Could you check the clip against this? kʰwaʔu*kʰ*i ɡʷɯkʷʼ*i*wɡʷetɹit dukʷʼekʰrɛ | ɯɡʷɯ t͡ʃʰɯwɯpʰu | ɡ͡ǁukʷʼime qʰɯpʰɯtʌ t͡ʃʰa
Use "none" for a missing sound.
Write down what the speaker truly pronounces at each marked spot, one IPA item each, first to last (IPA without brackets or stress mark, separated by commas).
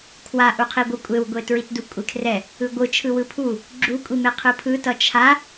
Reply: qʰ, e